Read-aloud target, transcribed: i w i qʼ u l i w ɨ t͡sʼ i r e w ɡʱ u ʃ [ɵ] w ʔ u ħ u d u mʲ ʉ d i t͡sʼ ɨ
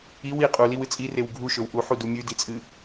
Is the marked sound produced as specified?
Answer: yes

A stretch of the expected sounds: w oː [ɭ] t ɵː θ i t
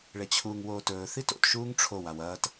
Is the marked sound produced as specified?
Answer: no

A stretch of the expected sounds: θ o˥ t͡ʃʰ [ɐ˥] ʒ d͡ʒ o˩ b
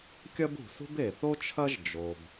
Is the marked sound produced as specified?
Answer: yes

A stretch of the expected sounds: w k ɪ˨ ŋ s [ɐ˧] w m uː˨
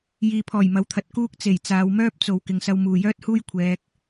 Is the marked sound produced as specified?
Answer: yes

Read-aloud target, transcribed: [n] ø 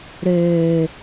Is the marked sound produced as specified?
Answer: no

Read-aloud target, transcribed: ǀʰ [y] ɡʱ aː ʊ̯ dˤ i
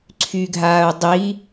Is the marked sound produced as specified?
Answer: yes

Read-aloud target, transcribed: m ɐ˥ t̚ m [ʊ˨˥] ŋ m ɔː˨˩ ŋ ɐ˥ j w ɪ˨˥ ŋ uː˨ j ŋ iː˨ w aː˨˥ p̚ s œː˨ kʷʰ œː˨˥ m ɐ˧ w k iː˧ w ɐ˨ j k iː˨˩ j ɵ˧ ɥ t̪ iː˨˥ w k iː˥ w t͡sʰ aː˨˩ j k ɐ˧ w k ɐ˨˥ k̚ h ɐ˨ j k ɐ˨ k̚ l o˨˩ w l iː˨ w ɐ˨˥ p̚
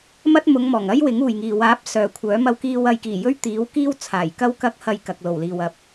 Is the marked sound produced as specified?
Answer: no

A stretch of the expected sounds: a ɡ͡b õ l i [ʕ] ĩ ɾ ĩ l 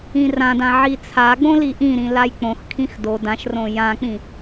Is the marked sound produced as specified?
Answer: no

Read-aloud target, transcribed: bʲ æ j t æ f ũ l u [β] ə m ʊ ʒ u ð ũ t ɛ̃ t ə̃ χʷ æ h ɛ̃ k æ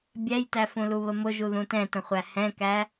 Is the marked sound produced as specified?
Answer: yes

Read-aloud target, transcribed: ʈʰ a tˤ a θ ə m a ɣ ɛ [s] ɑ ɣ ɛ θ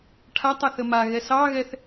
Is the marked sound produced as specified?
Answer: yes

